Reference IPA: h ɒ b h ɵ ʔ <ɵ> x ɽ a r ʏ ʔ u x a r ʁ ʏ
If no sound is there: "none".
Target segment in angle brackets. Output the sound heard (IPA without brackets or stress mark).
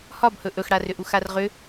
ɵ